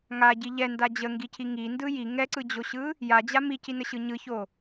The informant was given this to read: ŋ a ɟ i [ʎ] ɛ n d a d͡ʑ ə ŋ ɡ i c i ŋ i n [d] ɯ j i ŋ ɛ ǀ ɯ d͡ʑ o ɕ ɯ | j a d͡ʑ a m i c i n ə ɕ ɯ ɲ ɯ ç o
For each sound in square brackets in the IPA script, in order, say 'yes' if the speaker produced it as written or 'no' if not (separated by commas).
yes, yes